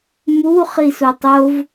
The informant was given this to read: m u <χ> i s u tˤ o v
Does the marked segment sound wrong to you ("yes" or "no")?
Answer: no